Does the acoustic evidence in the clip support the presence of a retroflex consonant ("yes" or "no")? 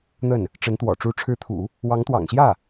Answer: yes